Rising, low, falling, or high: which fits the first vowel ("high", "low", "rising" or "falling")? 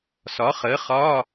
rising